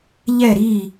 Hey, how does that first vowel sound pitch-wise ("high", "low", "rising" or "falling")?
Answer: falling